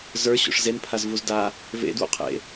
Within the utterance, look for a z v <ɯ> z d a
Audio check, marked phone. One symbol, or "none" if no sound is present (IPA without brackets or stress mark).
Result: u